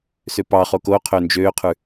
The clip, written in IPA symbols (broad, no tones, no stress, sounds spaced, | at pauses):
s ø p ɑ χ o k o qʰ ø n d͡ʒ øː qʰ ʉ